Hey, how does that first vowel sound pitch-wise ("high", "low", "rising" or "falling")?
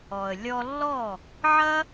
low